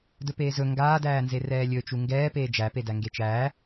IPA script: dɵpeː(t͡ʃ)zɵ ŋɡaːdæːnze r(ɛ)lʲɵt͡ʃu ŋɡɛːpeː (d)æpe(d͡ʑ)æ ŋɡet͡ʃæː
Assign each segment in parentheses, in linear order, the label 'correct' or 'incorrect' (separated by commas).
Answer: incorrect, incorrect, incorrect, incorrect